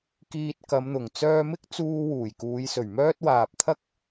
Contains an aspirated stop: yes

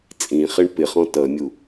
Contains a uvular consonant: yes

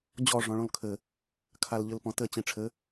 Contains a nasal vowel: yes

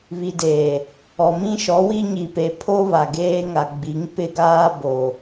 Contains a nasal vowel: yes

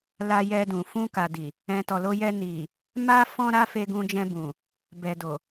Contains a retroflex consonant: no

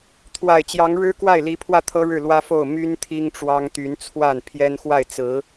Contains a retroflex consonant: yes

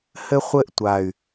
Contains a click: no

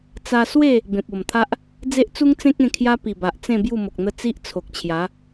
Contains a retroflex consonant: no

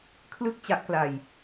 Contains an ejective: no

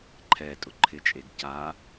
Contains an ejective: yes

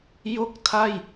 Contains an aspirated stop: yes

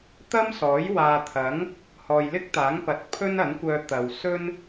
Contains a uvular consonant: no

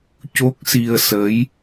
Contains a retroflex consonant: no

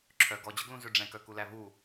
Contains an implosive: no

